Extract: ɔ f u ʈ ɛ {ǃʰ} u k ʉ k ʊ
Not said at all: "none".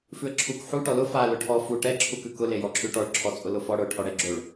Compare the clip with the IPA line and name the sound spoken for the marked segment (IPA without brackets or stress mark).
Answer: ǁʰ